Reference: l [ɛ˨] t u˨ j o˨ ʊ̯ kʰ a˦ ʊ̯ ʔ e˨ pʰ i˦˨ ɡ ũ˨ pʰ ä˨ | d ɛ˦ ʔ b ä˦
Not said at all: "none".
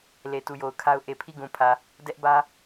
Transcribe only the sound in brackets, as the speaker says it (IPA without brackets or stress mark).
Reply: e˨